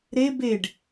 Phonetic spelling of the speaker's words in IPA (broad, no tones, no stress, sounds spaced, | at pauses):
ɾ e b e ɖ